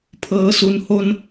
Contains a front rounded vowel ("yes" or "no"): no